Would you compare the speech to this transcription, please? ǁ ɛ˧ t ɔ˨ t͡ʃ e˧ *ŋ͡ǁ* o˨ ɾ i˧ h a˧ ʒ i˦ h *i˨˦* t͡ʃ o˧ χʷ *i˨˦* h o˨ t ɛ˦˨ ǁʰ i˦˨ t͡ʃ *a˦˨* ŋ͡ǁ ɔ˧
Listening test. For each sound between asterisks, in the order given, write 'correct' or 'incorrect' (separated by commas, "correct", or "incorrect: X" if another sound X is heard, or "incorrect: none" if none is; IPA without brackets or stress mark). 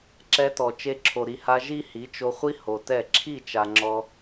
incorrect: ǁʰ, correct, incorrect: i˦, incorrect: a˨